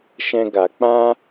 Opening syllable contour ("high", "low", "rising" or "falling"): high